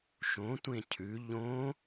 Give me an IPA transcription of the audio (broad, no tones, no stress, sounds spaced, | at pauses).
ʃ õ tʷ ẽ cʰ ʉ ʎ õ